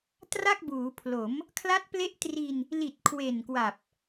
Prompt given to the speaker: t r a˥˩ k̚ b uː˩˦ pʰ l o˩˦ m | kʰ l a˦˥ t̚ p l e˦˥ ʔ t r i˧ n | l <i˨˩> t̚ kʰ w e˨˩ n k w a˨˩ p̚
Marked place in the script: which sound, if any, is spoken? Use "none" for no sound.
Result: i˨˩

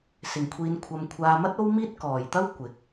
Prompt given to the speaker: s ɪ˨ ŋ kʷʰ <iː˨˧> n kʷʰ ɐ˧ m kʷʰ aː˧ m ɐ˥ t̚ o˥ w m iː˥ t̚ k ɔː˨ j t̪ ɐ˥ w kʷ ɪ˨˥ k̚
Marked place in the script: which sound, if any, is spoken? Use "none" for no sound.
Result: iː˧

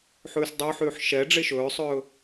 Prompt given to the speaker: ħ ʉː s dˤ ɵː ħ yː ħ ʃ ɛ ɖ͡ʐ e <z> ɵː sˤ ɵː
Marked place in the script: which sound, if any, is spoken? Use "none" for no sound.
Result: ʃ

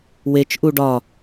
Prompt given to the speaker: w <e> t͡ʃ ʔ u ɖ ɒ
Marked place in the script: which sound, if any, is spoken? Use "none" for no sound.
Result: e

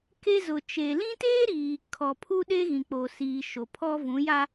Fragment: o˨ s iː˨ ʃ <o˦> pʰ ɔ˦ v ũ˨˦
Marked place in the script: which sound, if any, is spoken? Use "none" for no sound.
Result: o˨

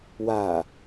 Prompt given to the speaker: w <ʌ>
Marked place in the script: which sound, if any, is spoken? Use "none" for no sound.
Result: a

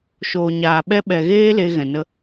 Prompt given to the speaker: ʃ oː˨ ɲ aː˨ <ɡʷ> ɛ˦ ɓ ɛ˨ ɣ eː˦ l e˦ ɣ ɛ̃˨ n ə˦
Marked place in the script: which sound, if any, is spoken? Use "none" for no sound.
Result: ɓ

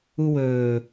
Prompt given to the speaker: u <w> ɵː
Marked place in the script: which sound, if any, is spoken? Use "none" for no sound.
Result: w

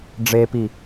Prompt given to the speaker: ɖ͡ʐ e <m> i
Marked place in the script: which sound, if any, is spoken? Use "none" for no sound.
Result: p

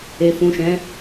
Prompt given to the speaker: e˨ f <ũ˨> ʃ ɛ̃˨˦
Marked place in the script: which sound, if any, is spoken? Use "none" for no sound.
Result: ũ˨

